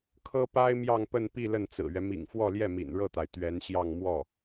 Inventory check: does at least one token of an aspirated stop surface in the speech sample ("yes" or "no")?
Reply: yes